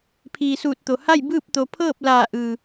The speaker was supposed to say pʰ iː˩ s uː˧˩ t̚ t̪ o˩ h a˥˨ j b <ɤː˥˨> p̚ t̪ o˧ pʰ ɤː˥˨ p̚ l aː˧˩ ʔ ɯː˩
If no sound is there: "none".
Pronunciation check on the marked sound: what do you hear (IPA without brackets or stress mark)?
ɯː˥˨